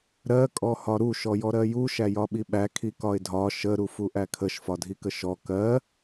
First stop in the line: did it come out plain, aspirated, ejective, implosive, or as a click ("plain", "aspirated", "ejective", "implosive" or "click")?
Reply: ejective